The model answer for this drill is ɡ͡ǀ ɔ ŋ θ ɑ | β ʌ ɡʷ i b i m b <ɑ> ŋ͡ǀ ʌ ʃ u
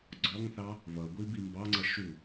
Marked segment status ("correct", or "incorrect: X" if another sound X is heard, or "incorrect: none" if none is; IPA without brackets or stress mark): correct